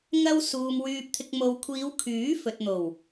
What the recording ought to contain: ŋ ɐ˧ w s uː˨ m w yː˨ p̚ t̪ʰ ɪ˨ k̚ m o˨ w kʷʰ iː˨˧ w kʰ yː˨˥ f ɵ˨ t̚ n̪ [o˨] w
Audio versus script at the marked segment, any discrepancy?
yes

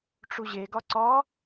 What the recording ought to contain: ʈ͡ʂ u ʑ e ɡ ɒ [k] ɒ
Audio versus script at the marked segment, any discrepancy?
yes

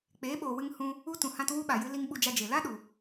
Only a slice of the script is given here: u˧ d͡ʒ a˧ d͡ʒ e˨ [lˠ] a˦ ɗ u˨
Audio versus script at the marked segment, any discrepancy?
yes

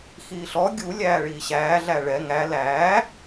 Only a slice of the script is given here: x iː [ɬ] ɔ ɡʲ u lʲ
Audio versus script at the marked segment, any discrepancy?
no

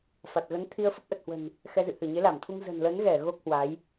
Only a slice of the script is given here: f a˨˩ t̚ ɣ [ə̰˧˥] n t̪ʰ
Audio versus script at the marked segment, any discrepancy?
yes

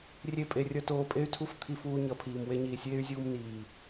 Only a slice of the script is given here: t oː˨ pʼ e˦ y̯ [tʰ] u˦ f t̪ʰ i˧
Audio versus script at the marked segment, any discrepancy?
no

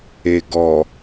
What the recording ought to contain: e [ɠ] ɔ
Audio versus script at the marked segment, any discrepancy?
yes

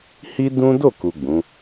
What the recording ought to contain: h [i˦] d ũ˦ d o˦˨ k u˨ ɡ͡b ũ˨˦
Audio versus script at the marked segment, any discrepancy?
no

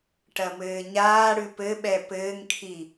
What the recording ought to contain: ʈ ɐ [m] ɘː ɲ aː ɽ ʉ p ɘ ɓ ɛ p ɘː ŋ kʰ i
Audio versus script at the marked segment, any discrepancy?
no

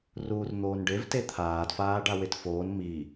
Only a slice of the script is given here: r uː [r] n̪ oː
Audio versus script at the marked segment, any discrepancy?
no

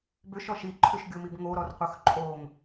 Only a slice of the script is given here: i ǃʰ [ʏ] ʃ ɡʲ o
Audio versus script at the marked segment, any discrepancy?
no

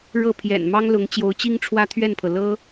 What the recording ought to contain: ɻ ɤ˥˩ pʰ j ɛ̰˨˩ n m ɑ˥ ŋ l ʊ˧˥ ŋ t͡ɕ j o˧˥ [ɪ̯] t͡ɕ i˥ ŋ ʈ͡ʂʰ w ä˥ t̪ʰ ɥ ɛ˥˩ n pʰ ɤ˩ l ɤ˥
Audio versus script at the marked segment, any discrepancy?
yes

